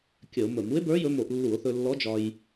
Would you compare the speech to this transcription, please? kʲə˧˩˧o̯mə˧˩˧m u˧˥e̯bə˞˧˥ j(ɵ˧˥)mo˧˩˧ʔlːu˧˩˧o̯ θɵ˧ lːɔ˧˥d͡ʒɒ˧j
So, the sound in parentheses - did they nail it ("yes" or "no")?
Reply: yes